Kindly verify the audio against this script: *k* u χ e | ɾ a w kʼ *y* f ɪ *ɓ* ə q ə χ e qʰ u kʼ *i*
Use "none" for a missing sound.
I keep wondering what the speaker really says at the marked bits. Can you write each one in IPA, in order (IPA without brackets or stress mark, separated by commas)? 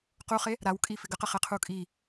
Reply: q, i, ɡ, i